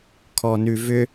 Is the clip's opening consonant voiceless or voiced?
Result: voiceless